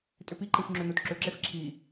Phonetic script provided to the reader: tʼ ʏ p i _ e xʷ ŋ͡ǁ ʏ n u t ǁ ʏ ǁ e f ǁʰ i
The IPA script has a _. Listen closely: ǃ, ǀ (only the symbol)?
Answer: ǃ